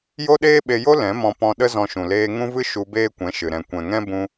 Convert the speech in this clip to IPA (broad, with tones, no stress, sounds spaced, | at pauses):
j o˦ ɗ eː˦ ɓ e˧ j o˦ l ɛ̃˨˦ m ɔ̃˧ p ɔ̃˧ ɗ ə˦ z ɔ̃˧ ʃ ũ˨ l eː˧ ŋ ũ˦ v ɨ˦ ʃ u˧ b eː˦ kʷ ɛ̃˨˦ ʃ ɨ˨ ɾ ɛ̃˨ kʷ ɛ̃˨ ŋ ɛ̃˦ b ũ˧